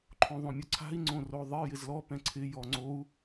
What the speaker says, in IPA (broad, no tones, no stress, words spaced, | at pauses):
ǃʰõðˤõmʲʊǀʰa̤i̯ ŋ͡ǀõroðˤɪ jɪzlɔ pɛ̃ǀʰɪ jɔŋ͡ǀou̯